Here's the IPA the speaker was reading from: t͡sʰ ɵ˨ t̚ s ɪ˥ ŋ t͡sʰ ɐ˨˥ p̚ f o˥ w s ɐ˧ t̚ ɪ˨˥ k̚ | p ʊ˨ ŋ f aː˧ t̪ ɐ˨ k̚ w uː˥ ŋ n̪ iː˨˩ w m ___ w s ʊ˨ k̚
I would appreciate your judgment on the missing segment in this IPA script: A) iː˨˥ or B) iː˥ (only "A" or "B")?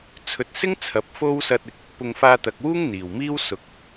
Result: B